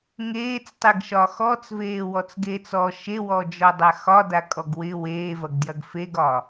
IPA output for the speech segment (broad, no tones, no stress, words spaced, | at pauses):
ŋeːt͡stˤeɡʃɒ xɔt͡sveːwɔt͡sɡeːt͡s ɔ ʃewɔd͡ʒɔdˤa xɒdakʼɔɡ wɪ weːvɐɡdjɐɡ feɡɒ